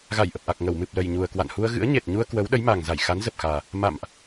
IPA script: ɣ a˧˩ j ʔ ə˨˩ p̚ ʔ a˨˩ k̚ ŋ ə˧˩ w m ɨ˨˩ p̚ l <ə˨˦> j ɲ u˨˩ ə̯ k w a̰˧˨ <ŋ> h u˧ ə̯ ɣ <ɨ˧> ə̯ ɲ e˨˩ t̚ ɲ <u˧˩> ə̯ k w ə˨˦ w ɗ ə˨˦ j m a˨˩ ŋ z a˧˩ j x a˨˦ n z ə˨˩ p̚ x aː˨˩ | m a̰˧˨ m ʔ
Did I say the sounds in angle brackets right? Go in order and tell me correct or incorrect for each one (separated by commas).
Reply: incorrect, incorrect, incorrect, incorrect